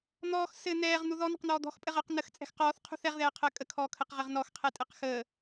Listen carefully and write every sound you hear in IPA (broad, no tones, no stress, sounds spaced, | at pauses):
n̪ ɔː x s ɘ n̪ ɛː ʁ n̪ u ð ɔ n ə̤ q n̪ ɔː d̪ ɔ̤ x pʼ ɘ ʁ əː q n ə x t͡sʼ ɛ̤ x q ɔː θ qʰ ṳ θ ɛ ʁ ð ɛː qʰ əː kʼ ə kʰ ɔː kʰ ə q ʁ ɘ ʁ n ɔ x qʰ ɛ tʼ ɘ q x əː